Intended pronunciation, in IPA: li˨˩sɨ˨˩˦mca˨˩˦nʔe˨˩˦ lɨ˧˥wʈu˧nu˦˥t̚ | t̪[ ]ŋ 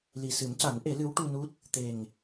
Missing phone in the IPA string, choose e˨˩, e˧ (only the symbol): e˨˩